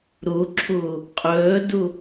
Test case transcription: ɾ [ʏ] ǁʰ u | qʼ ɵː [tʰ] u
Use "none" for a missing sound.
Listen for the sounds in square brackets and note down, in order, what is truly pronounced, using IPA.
u, d

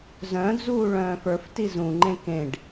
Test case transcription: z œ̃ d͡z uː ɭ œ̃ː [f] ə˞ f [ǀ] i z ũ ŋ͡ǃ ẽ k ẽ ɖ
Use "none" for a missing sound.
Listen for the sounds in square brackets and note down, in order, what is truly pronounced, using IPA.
f, t

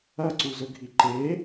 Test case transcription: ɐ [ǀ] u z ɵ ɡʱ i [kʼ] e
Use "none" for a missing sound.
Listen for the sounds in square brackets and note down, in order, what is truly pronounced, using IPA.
ǀ, ǃ

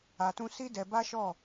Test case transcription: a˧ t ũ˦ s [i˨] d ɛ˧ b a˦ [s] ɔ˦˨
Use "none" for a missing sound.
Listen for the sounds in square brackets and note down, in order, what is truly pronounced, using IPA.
i˦, ʃ

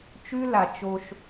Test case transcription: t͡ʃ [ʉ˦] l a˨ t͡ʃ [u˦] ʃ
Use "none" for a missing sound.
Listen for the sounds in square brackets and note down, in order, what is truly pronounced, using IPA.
ʉ˦, o˦

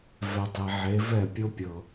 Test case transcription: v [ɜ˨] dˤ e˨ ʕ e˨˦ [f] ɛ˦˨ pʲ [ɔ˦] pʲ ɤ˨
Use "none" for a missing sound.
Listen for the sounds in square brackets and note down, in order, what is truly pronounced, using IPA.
ɛ˨, v, o˦

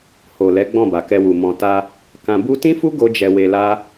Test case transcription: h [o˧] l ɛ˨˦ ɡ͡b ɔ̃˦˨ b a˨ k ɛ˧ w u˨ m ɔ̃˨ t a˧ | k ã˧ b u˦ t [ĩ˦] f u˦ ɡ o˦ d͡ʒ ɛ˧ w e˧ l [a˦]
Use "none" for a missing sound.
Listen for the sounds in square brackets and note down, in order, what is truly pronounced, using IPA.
o˨, ĩ˦, a˦

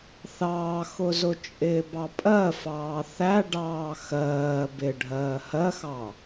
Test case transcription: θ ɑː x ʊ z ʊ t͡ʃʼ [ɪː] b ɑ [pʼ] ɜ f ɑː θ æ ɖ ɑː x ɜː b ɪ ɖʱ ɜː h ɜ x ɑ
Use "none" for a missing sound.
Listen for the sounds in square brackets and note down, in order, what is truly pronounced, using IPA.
ɪː, pʼ

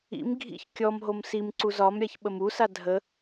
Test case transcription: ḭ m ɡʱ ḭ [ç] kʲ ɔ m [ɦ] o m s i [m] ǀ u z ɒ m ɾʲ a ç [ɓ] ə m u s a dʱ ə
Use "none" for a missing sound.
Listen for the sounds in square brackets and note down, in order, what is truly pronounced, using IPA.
ç, ɦ, m, ɓ

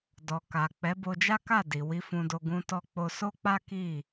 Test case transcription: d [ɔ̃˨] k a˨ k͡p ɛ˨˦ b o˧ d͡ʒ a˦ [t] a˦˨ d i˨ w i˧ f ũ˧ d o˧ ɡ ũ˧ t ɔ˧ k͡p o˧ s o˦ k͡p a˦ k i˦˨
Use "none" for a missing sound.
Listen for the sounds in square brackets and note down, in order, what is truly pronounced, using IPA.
ɔ˨, k

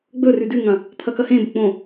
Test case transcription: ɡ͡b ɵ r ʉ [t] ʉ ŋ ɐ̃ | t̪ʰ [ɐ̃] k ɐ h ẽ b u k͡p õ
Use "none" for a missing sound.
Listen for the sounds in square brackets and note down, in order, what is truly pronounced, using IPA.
d, ɐ

